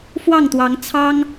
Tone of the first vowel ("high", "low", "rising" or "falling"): falling